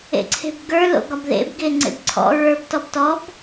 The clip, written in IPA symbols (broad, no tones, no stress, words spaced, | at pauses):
ḛǀʰe̤bɡə˞ lo̰ɡɒbðḛb ɡeŋ͡ǀḛbǀʰɔ̰ ɹə˞b tɔbtɔb